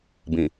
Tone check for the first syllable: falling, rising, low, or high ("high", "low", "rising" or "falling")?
low